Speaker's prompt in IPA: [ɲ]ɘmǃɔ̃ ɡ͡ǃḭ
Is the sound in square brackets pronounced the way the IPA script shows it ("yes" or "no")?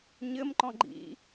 yes